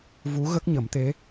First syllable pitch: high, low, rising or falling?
rising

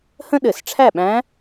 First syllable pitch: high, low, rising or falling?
high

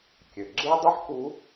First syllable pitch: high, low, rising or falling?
low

